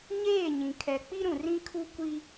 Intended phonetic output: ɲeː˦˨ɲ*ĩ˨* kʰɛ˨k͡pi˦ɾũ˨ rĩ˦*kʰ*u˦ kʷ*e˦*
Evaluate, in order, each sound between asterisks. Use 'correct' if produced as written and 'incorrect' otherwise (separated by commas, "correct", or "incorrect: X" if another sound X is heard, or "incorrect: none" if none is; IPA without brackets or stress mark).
correct, correct, incorrect: i˦